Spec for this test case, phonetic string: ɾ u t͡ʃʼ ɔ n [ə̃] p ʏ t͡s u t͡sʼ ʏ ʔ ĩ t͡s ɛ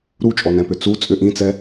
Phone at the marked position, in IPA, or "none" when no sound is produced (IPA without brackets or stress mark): ɛ̃